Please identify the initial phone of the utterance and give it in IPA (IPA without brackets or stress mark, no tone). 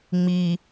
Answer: ŋ͡m